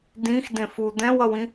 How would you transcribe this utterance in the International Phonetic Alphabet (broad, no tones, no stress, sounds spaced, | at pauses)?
d ĩ x d ẽ f u d̪ ɛ̃ w ʌ w ĩ